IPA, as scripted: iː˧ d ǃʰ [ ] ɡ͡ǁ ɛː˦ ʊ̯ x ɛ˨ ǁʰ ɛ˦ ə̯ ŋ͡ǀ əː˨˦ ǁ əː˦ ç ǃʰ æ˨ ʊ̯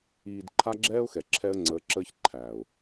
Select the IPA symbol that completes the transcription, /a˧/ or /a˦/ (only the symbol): a˦